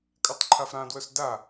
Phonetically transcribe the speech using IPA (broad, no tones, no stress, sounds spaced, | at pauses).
kʼ a tˤ ǃʰ a f ɾ ã d w œ s d a